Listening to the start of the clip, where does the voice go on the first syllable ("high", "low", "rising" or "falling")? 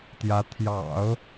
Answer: rising